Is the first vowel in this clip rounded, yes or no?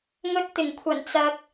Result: yes